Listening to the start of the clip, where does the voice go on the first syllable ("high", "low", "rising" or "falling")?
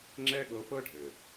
high